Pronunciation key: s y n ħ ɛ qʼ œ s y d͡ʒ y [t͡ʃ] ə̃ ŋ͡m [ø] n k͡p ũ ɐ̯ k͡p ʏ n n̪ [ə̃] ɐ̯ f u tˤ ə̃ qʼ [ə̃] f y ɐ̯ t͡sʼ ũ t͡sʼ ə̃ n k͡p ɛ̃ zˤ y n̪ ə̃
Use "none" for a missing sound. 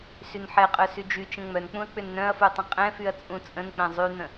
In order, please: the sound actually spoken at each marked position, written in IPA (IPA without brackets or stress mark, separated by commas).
t͡ʃ, œ, œ̃, ɛ̃